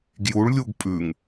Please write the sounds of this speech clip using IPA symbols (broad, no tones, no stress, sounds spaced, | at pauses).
ɡ j u ɭ lʲ u ɡ pʼ ʉ ŋ